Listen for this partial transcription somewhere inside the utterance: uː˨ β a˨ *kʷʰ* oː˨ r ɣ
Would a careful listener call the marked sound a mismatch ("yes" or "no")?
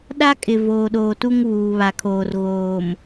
yes